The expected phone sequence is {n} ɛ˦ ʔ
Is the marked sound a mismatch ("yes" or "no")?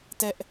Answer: yes